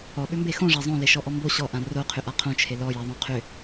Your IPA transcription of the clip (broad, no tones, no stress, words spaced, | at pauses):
ɔɓʏmbe xõʐa zˤõleʃɔʔɔ mbo ɕɔʔã roqʰʏʔa qʰõt͡ʃʰe lɔjaðˤõ qʰʏ